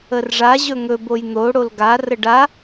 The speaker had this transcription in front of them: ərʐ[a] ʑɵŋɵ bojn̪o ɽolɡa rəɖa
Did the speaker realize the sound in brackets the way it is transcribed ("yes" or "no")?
yes